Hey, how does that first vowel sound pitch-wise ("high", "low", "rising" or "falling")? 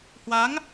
rising